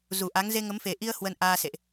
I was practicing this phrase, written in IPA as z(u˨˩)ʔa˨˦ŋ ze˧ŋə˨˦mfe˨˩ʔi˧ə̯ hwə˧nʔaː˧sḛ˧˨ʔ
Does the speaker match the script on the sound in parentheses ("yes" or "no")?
yes